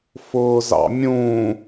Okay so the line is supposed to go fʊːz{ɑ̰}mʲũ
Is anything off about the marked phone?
no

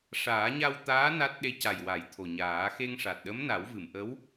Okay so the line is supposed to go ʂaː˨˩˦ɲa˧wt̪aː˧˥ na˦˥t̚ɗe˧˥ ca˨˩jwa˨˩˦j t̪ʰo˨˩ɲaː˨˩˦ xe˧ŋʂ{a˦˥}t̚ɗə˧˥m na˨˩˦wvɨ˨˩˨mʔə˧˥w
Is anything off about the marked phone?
yes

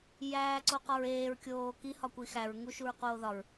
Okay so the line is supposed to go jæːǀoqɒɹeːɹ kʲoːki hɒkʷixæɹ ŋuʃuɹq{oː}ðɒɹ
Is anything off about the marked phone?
no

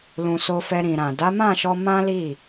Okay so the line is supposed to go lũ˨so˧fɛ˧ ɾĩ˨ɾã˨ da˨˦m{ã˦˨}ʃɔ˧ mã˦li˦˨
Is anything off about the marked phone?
no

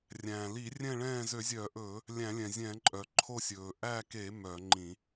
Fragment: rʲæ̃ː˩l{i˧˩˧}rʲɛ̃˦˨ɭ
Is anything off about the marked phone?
no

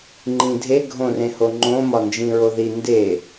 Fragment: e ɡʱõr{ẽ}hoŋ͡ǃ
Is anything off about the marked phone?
no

